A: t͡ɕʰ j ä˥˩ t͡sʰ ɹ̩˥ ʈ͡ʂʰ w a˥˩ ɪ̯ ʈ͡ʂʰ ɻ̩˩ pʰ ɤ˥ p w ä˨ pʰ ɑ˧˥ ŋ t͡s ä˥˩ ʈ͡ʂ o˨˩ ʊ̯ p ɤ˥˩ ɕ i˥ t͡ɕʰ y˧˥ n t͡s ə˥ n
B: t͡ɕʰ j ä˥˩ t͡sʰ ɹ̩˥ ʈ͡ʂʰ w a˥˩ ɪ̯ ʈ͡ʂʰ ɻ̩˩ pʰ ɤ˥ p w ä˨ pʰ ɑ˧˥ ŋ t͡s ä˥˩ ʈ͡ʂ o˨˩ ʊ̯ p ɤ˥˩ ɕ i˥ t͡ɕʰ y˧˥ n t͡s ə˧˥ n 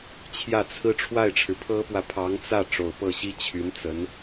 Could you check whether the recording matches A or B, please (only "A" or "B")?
B